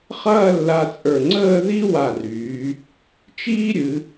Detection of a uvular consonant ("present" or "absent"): present